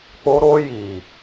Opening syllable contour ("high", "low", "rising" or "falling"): high